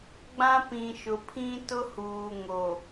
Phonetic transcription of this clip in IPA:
ɡ͡b ã˦ p ĩ˨ ʃ ʊ˨ pʰ ĩ˦ t ʊ˦ h uː˨ ŋ o˨

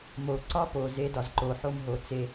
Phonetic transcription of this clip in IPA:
m o˨ ǀ ɒ˦ p o˨ z e˦ d ɒ˨ z ǃ o˨ ħ o˦ m ɦ o˨ t͡s e˦

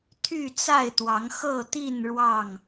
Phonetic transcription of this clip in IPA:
t̪ʰ y˥˨ t͡s a˥˨ ɪ̯ t̪ w ɑ˨˦ ŋ x ɤ˥˨ t̪ i˥˨ n ɻ w ɑ˥˨ ŋ

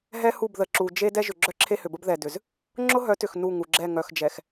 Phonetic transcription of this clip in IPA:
ɦ ɛ˦ h u˦˨ b ð ə˨ ǁ u˨ d͡ʒ e˦ d ɛ˦ ʒ ʏ˨ ɡ͡ǁ œ˦ ǁʰ e˦ h ʏ˨ b ə˦ b ð ɛ˨ d ʏ˨ z | ŋ͡ǁ ʊ˦ ɦ œ˨˦ t ʏ˨ x n u˦˨ ŋ u˨ ɡ͡ǁ ɛ˦˨ ŋ œ˨ x d͡ʒ ɛ˨ x

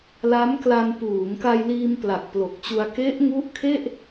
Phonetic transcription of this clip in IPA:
l a˦˥ m k l a˧ n p uː˩˦ ŋ k a˧ j l iː˧ m p l a˨˩ k̚ p l o˨˩ k̚ t͡ɕ u˧ a̯ k e˦˥ ʔ ŋ u˦˥ ʔ kʰ e˥˩ ʔ

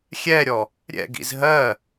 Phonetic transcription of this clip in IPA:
xʲ ɛ ɾʲ ɔ | ɾʲ ɛ̰ ɡ ḭ z ɦ ɜ

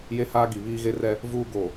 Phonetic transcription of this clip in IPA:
j e˦ h aː˦ ɡ i˨ β iː˦ ɣ e˦ r ɛ˦ | v uː˦ ɡ o˨

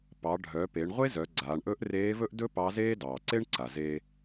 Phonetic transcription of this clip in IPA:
p ɑ˩˧ ɖʱ œ˩˧ p e˩˧ ɳ ʁʷ e˥ z œ˩˧ ɡ͡ǀ aː˩˧ ɳ ʔ ɵ˧˥ ʔ r eː˧˥ v ɵ˥ ʔ d ɵ˥ p ɑ˧˥ z eː˥ d ɑː˩ ǀ e˥ ɳ ǀ a˩ z e˧

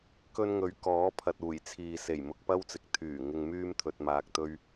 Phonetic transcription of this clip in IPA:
k ɵ˧ n ŋ ɵ˨˥ ɥ k ɔː˨˥ pʰ ɐ˨ t̚ uː˨˩ j t͡sʰ iː˨ s e˨˩ j m ʊ˧ k̚ p ɐ˥ w t͡s ɪ˨ k̚ t̪ʰ yː˨˩ ŋ ɪ˧ ŋ m yː˥ m t̪ʰ ɵ˧ t̚ m aː˧ k̚ t̪ ɵ˥ ɥ

